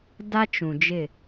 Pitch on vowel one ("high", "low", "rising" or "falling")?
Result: high